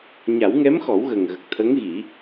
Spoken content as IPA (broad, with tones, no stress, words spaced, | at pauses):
ɲa˨˩˦wŋɛ˧˥mxɔ˨˩˦w ɣə˨˩ŋɣə˨˩k̚t̪ʰə˧˥ŋɣi˨˩˦